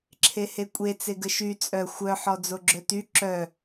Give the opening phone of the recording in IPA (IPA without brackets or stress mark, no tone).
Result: ǁʰ